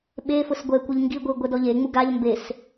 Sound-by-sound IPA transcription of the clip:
ɓ e f ʊ s ɡʷ ɛ kʷ ɛ ʎ ŋ ɡ i ɡʷ i ɡʷ ɛ d ɔ ʎ e ŋ͡m u ɡ a ʎ m b e s

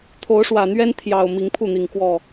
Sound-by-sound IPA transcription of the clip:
t̪ʰ o˨˦ ʊ̯ ʂ w ä˨˩ n̪ ɥ ɛ˦ n t̪ʰ j ɑ˨˩ ʊ̯ m i˨˦ ŋ pʰ u˥˨ n̪ i˨˩ ŋ k w ɔ˥˨

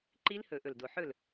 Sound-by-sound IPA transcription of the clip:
ǃ i˦˥ l h ɵ˨˩˦ ʔ ɵ˨˩ l d o˨˩ ħ ɵ˥˨ l

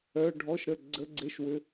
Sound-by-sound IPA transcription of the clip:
œ˧˥˧ ɖʱ ɔ˧˥˧ ʃ ɾ ə˦˨ ɡ͡ǀ ə˧˥˧ ɡ͡ǀ e˧˥˧ ʃ w ʏ˧˥˧

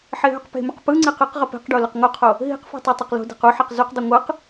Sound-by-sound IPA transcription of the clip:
ħ e ɦ ʏ q p e̤ m ʏ q p ɯ ŋ͡ǀ e q ɯ q ʁ ə p e̤ q ɖ o l ʏ q ŋ o qʰ o | ɦ i̤ q f i̤ tˤ o tˤ u q l o̤ d e̤ q u ħ ɛ q z u q dˤ i ŋʷ ɯ q

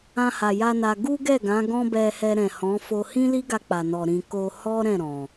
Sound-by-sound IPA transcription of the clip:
ã˧ h a˨ j a˧ n a˧ ɡ u˦ ɡ ɛ˦˨ ɡ ã˨˦ ɡ ɔ̃˦ b ɛ˧ h ɛ˧ ɾ ɛ̃˨ h ɔ̃˨˦ f o˧ h ĩ˦ l i˦ ɡ a˧ k͡p a˨ n ɔ˨ ɾ ĩ˨ k o˧ h ɔ˦ ɾ ɛ̃˦˨ ɾ ɔ̃˨

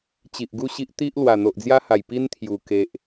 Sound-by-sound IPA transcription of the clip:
t͡ɕ i˨ ʔ ɡ u˥˧ ɕ i˦ ʔ t̪ i˦ ʔ l w a˨˩ n̪ o˨ ʔ d͡z j a˦ h a˨˩ j p i˦ n t̪ʰ j u˨˩ k e˨ ʔ

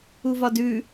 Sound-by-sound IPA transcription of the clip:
u v ɒ d ʉ

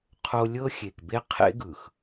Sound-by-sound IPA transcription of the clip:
qʰ o˦ lʲ ɤ˦ xʲ e˨ k b e˦ qʰ ḛ˦ ɡ ɯ˨ x

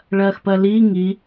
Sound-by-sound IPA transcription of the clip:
ɭ ɜ x p ɜ l i ŋ i

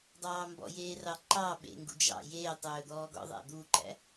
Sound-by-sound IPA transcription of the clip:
dˤ ɑː m b ɔ̰ j eː r ɑ ǃ ɑ ɓ ḛ ŋ ɡ ṵ d͡ʒ ɑ̰ j eː tˤ ɵː d̪ ɔː ɡ ɔ̰ ðˤ æ̰ d̪ u ǃ æ̰

